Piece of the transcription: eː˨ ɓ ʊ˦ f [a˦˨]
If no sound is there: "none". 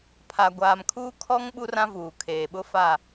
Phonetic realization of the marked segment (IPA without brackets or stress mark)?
a˦˨